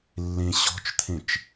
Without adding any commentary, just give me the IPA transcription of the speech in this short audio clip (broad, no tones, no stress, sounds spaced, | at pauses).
lː ẽ ɕ ɔ̤ t͡ʃ t̪ʰ ẽ t͡ʃ